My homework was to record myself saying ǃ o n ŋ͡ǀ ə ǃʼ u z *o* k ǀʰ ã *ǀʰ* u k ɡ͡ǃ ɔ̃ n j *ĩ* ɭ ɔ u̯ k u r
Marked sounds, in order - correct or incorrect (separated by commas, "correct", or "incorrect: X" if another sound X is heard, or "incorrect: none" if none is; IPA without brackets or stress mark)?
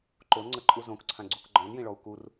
incorrect: õ, incorrect: ɡ͡ǀ, correct